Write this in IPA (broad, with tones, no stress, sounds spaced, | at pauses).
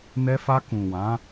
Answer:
n ɛ˧ f a˧ k ũ˨ w ã˨˦